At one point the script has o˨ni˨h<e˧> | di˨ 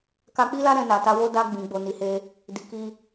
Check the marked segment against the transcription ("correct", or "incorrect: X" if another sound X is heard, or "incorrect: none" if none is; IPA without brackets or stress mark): correct